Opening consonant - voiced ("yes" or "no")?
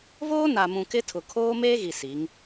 yes